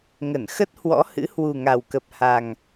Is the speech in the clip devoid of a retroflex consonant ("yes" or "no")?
yes